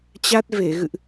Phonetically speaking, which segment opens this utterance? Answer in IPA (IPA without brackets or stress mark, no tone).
t͡ɕ